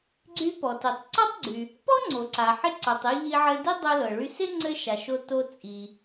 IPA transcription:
ɡ͡ǀ y˧ p ɔ˩ t i˩ tˤ ǀ ɔ˥ tˤ ɡ͡ǀ y˩ | p ɔ˥ ŋ͡ǀ o˩ ǀ a˩ ħ ɪ˧ ǀ o˩ tˤ i˧ ʎ i˧ ʕ ɘ˧ d i˥ dˤ o˧ l ɤ˩ ɭ y˧ s ɪ˥ ŋ͡ǀ ɘ˥ ʃ a˩ ʃ o˧ t o˧ t͡sʼ i˩

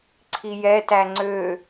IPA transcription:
ǀʰ i j ɛ t æ ŋ͡ǀ ø

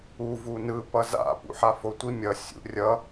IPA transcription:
u v u n ɯ p ʌ z a̰ p ṵ ħ a f o tʷ i mʲ ʌ sʲ ṵ rʲ ʌ

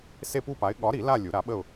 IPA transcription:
s e˥˧ p u˥˧ p a˨˥ ɪ̯ ɠ ɒ˨˥ ɾ i˨˩˦ l a˥˧ lʲ u˨˩˦ ɾ a˨˥ ɓ ə˥˧ ʊ̯

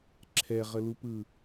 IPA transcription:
ǁʰ ɛ ʁ ə l u p ɯ

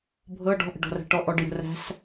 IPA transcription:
bʱ ɤ ɖ ɔ̤ ʔ ə̤ ɖ ɔ̤ r æ̤ ʈ ɔ ʔ ɔ ɖ j ə̤ r æ̤ s

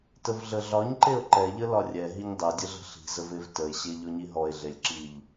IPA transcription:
t ə v ɮ ə ɮ ɒ ɲ ǃ e o̯ ǃ ɛ ʎ ə l ɒ rʲ ɛ ɦ i ɲ dˤ ɛ dʲ ə ɮ ə̤ ɬ i̤ z ə v e v t ə e̯ ɕ e ʎ ɔ ɲ i ɦ ɔ e̯ ɮ e lʲ ǁ i ʎ

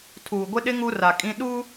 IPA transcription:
tʰ uː˨ ɡʷ ɪ˦ ɗ ɪ˦ ŋ u˦ r a˨ kʼ ĩ˦ ɗ u˦

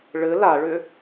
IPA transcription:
ɭ ɘ l a ɭ ʏ

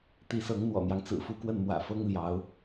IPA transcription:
t̪ i˧˥ s ɤ˧˥ ŋ n̪ w ɔ̰˨˩ n̪ j ɑ˦ ŋ t͡s ɹ̩˨˩ f u˥ k w ə˥˩ n m w ä̰˨˩ f ɤ˥ ŋ l j ɑ˧˥ ʊ̯

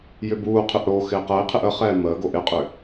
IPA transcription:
j ʏ b uː qʰ ʏ ʔ ɽ o x ɪː q əː i̯ qʰ ɪ ʔ ə χ ɛː m əː ɡ o ʔ ɪ qʼ ʏ

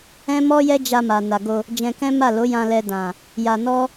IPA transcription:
ɛ̃˦ m ɔ˦ j ɛ˦ d͡ʒ a˧ m a˨ n a˨ ɡ o˧ | d͡ʒ ɛ̃˧ k ɛ̃˦ m a˦˨ l o˨˦ j ã˧ l ɛ˧ d ã˨ | j a˧ n ɔ˦

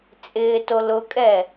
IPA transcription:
t͡sʼ ɪː t o l ʊ kʼ ɛ

